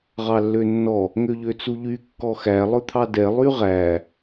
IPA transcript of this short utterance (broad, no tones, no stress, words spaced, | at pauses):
ʁɑlːønːɔ | ŋøʎøt͡suʎy kːɔxæ lˠɵt̪ʰɑdɛ lˠyʁæ